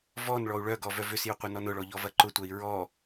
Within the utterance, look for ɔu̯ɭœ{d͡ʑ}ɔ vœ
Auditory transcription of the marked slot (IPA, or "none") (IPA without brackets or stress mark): ɡ